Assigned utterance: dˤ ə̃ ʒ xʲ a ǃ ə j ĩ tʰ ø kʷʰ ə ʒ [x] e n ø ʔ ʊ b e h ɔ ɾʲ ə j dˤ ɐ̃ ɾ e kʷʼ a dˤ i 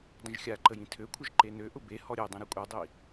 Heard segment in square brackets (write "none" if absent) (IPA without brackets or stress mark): ǃ